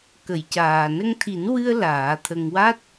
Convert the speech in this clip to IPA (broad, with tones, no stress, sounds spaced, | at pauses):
k ə˨˩˦ j c aː˨˩ n ə˧ ŋ t̪ʰ i˨˩˦ n w ɨ˧ ə̯ l aː˨˩˦ t̪ʰ ə˧ ŋ w a˦˥ t̚